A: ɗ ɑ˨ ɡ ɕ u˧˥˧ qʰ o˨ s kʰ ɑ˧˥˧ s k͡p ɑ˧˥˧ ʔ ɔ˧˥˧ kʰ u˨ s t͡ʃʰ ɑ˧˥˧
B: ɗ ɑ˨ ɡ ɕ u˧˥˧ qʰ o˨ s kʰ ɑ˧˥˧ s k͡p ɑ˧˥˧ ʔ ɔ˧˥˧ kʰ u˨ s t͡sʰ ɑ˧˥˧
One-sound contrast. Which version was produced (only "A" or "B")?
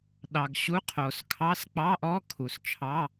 A